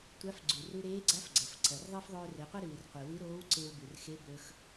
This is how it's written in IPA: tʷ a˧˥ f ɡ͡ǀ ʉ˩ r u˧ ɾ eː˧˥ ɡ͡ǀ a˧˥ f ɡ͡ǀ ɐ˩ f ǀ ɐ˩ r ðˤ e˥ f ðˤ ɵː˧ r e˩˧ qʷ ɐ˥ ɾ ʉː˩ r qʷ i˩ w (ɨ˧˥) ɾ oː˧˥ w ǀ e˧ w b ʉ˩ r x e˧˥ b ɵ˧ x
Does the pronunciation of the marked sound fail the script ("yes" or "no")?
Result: no